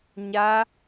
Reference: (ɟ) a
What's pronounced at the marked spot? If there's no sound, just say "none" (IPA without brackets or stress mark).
ɲ